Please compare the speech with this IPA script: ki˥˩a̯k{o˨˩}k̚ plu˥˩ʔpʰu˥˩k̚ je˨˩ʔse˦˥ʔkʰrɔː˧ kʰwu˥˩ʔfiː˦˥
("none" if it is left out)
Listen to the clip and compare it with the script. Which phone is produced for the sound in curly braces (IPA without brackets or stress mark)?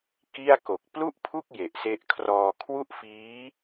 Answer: o˨˩